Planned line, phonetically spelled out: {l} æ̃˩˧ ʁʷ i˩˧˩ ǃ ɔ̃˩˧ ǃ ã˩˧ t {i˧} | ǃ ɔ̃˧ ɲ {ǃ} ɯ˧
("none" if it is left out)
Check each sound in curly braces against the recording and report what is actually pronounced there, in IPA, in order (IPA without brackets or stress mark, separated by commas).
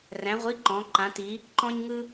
r, i˩˧, ŋ